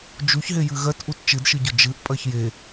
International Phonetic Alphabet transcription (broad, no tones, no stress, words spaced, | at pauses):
d͡ʒuçɦejɨ ɣɜtʔut t͡ʃɨdʃɨɟʊ d͡ʒɨʔpʼɜç je